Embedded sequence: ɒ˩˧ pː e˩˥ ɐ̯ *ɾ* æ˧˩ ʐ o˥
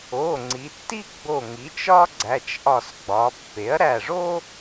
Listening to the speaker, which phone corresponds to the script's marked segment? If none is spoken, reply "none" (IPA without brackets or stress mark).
ɾ